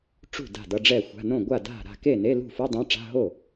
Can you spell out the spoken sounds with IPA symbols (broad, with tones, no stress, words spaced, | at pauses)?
ʈ͡ʂṳ˥˩ da̤˥˩dʌ˧˥˧ɖ͡ʐɛ˥˩xʷa̤˧˥˧ nõ˥˩ɡʷa˥˩da̤˥˩ ɾa̤˥˩ke˥˩ne˧˥˧ lṳ˥˩fu˧˥˧dˤã˧˥˧ ʈ͡ʂa̤˧˥˧ɦo˥˩